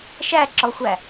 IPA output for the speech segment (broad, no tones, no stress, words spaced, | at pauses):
ʃæǁɔxʷæ